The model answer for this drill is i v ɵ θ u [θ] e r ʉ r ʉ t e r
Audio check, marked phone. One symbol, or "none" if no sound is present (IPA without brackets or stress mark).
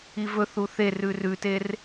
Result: θ